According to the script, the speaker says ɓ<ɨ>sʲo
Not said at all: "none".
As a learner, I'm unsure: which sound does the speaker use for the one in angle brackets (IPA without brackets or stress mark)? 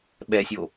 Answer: ɛ